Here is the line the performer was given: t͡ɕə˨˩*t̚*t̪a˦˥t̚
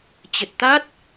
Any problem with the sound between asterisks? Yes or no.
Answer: no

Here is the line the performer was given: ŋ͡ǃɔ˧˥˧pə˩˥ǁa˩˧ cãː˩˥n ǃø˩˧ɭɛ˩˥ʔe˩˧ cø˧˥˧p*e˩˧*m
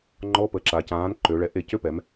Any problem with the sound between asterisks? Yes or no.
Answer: yes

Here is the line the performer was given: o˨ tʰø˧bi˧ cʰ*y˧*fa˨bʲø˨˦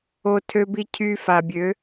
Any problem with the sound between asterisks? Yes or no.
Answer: no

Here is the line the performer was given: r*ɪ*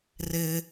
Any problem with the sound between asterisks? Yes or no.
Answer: no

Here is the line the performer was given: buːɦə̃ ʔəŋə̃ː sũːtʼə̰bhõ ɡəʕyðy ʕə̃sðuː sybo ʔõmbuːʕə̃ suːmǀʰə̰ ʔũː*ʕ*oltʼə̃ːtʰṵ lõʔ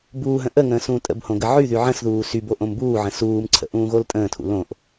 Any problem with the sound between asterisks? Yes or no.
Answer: yes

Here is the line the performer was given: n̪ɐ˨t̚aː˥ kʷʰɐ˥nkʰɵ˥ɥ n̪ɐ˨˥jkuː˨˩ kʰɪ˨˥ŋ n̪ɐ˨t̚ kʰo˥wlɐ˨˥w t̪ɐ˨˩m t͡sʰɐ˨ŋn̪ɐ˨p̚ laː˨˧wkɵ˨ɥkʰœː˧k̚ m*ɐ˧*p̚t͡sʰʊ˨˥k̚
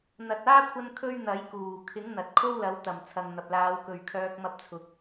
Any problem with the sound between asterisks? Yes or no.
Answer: no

